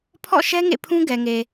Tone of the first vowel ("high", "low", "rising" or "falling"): falling